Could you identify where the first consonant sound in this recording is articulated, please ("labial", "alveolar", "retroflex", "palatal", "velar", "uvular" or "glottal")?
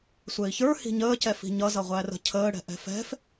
alveolar